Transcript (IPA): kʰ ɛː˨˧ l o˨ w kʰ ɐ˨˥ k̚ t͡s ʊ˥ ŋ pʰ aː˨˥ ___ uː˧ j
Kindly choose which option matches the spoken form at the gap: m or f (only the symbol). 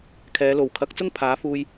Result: f